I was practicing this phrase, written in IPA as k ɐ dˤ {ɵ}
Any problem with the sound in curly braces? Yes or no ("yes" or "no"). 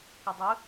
no